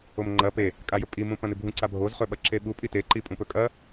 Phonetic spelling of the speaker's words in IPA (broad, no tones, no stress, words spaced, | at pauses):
omŋ͡ǃɐ pe | kʼajɵpʼi mũpɐ̃nɨbʱũ ǀabʱoz χɵɓɐǁeɓu pʼite ǃipʼũpɵkʼɐ